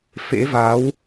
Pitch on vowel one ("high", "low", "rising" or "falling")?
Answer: rising